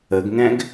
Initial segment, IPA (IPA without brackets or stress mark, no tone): ə